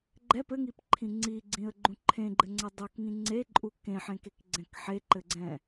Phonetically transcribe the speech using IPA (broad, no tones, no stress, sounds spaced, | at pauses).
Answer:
ɡ͡ǃ ɛ p ɘ ŋ i p ǃʰ ĩ ŋ͡ǀ i ɡ͡ǀ ĩ ə̯ ɡ͡ǃ ũ ǃʰ ẽ ɡ͡ǃ ɘ ŋ͡ǀ ɛ dˤ o k ŋ ĩ ŋ͡ǀ e ǃʼ u k ẽ ħ ẽ k e k ɡ͡ǀ ɛ̃ k ħ e ǃ ɘ ɡ͡ǀ ɛ̃